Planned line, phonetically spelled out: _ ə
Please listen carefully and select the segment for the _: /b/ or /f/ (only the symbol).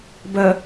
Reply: b